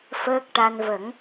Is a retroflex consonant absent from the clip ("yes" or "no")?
no